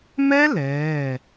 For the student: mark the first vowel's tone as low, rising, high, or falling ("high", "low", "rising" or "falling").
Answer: high